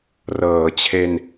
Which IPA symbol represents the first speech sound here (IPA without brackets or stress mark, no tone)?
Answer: r